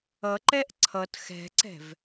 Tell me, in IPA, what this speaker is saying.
ʌ ǃ ɛ ʔ ǀʰ ʌ t x ɛ̤ ǀ ɛ̤ v

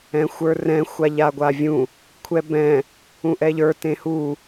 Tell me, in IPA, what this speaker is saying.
ɛ̃ xʷ ə˞ r ɛ̃ xʷ a ʎ a ɡʷ a vʲ ũ | kʷʰ ɛ b ɛ̃ | ũ ʔ ɛ ʎ ə˞ t ẽ h u

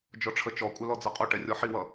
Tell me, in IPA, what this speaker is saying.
d͡ʒ ɔ ʈ͡ʂʰ ə t͡ʃ ɔ kʷʼ œ l ɔ d͡z ʌ qʼ o ʈ ɛ rʲ ɔ ħ i w ʌ

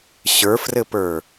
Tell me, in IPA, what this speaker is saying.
ɕ ə˞ f r ɘ p ə˞

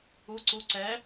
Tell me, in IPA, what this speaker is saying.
u ǀ u ǀ ɛ

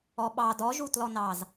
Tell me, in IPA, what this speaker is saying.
ɔ ɓ ɑ d ɔ ʒ u t l ɔ n ɑ z

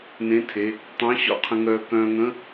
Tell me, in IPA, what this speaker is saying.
n ẽ˧˥˧ tʰ e˩˧˩ | tˤ œ̃˧˥˧ ɕ ɔ̰˧ qʰ ə̃˧ ŋ œː˧ k œ̃ː˧ ŋ ə̃˧˥˧

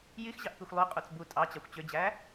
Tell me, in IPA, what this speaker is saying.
j i x ʑ ɑ ʔ p i xʷ lˠ y qʼ u t͡s b u tʼ ɑ t͡ɕ ɑ xʷ t͡ɕ ø d͡ʑ æ

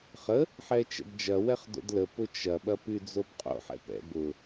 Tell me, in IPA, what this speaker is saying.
χ ə | ħ ɛ t͡ʃ ɛ̰ d d͡ʒ ɐ w ɛ χ d o̰ d l ə p ʊ t͡ʃ ɐ ɓ ɐ p y d͡z o b qʼ o̰ ħ ɛ̰ p ɛ̰ b ʊ

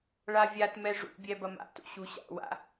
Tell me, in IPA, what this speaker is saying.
ɭ a vʲ a t m ɛ ʐ ṵ bʲ ɛ b ɐ m a̰ t ṵ ɕ u ɕ a̰ w a̰

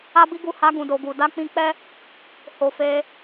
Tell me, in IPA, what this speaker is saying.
a˧ b i˧ ɡ u˧ h a˧ ɡ ũ˨ d o˨ ɡ u˨ d a˧ k͡p ĩ˧ k͡p ɛ˦ | h o˨ f e˧

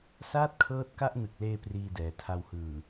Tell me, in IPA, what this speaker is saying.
s aː˥˩ t̚ kʰ ɤː˦˥ t̚ k a˥˩ ʔ n ɯ˨˩ k̚ l eː˧ p r iː˧ d ɛː˨˩ tʰ a˧ w h ɯː˨˩

